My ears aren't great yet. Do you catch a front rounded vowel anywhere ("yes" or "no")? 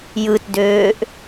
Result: yes